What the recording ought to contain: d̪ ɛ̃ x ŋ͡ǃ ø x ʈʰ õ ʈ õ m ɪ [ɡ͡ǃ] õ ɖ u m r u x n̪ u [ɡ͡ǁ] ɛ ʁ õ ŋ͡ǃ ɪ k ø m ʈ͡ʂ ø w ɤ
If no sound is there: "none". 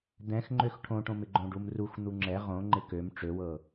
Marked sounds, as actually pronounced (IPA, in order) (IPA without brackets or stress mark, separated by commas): ɡ͡ǃ, ŋ͡ǁ